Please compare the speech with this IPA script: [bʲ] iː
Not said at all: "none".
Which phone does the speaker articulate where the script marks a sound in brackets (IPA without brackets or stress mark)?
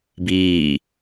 b